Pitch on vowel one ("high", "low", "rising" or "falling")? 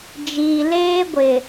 low